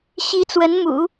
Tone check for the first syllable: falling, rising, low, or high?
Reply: rising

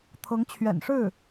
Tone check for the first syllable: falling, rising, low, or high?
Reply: rising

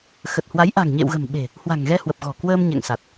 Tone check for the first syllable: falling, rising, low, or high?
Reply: low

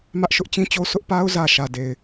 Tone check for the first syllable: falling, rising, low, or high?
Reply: high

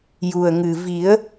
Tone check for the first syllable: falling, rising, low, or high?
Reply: low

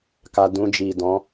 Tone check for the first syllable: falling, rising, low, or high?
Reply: low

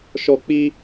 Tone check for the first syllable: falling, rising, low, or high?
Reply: high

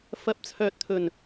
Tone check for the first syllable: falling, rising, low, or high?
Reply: rising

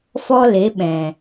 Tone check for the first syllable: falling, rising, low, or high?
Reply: high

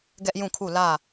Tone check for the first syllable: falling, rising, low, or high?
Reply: high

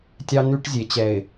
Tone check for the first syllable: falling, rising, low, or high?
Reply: high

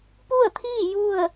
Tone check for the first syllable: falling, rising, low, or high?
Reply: falling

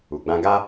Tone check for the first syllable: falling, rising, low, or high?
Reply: low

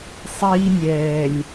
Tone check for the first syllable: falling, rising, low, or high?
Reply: high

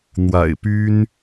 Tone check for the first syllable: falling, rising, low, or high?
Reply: low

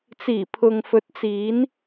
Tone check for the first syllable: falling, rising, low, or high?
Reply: low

